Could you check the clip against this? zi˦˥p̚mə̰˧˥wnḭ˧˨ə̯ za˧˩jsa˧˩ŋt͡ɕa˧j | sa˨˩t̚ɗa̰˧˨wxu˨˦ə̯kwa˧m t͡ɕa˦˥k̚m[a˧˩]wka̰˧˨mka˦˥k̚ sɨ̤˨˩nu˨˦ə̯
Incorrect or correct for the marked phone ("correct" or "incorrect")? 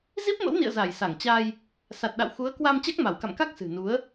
correct